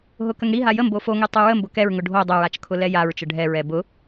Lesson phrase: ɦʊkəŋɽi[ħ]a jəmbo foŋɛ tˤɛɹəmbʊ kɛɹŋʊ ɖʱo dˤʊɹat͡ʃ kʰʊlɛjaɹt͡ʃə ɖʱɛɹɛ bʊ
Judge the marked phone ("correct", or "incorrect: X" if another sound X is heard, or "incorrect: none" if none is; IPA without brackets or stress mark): incorrect: ɦ